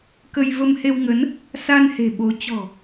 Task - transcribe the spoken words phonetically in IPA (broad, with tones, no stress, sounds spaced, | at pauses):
k ə˧ j v ə˧ m h e˧ w ŋ ə˨˦ n | s a˧ n h e̤˨˩ ɓ o˨˦ t͡ɕ ɔ̤˨˩